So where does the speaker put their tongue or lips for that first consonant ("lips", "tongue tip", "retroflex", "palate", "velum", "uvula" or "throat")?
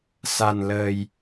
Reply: tongue tip